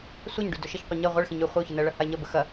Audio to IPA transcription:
sʷ a ɲ ɖ y d ɵ ʃ ə ç qʷ i ɲ ɜ ʁʷ ɐ ɭ x ĩ ɲ y χʷ ɐ ʊ̯ ç ə n ɜ ɭ ɐ h a ɪ̯ ɲ ɐ b ə x ɐ

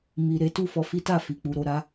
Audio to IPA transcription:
m i˧ ɾ e˦ t u˦˨ f ɔ˧ f i˦ t a˦˨ f i˨ k͡p u˨˦ ɾ o˧ ɾ a˦

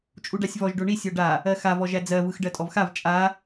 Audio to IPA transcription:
t͡ʃʼ u ɖ a sʲ v ɔ ʒ ɖ o ɳ i sʲ ɔ ɖ a | ɜ x a v ɔ ʒ æ d͡z ɜ v ɯ x ɖ ɜ tʼ ɔ v x a v t͡ʃʼ a

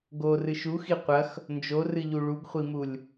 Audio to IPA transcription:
ɡ o r ɨ ʃ u x i qʷ ɐ x | n d͡ʒ o r ɨ ʎ u ɭ u ɡ χʷ i m u lʲ

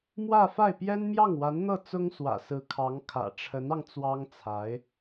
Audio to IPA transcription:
m w ä˥˧ f a˥˩ ɪ̯ p j ɛ˥ n m j ɑ˥˩ ŋ w a˧˥ n n̪ ɤ˥˩ t͡s ʊ˥ ŋ s w ä̰˨˩ s ɹ̩˧˥ kʰ ɑ˧˥ ŋ kʰ ä̰˨˩ ʈ͡ʂʰ ə˧˥ n ɑ˧ ŋ t͡s w ɑ˥ ŋ t͡sʰ a˧˥ ɪ̯

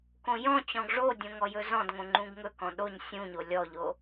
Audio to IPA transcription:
k õ j ɔ̃ t͡ɕ ɔ̃ ɡ ʐ o dʲ õ ŋ ɔ j ɵ z ɔ̃ d ŋ õ ŋ͡ǃ ũ ɡ ŋ ɵ k ɔ̃ ɗ o ɲ sʲ ũ ɲ o lʲ ɔ ʎ o

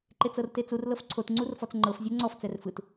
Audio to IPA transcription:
ǃ e t͡s ɤ r t e t͡s u r l ɤ f ǀʰ o t ŋ͡ǀ u r f ɔ t͡s ŋ͡ǃ ɤ f zʲ ɤ ŋ͡ǀ ɔ f t͡s ɛ r f ɯ t

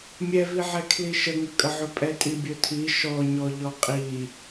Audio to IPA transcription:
mʲ ɛ v i ʕ ɛ kʰ l i ʃ ə ŋ ə kʼ ə ʕ ɵ pʼ ɛ tʼ i bʲ ɵ tʰ i ʃ ɔ ɲ ɔ ʎ ɔ qʼ i

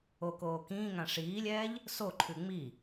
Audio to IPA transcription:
o k oː k ĩː ŋ ã ʂ iː lʲ ɛː ʎ | s o ǃʰ ʉ ŋ͡m i

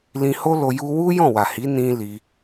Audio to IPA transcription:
l ĩ˧ h o˦ l o˧ j u˧ w u˦ j ɔ̃˦˨ w a˨ h i˨˦ n ĩ˦ l i˧

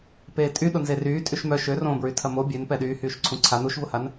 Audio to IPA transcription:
p eː tʼ y ɗ ʊ n z e r yː tʼ y ʃ m œ ʃ ø r õː b ɹ y tʰ ɐ m o bʲ ø n p ɛ ɗ yː h yː ʃ ǀʰ ũ ǀʰ a n u ʃ v ʊ h a n

